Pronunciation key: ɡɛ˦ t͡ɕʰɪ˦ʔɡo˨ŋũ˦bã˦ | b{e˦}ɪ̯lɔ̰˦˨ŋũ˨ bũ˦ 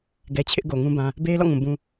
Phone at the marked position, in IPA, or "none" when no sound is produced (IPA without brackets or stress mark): e˦